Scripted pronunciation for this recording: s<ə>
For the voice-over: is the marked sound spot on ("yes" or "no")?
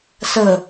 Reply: yes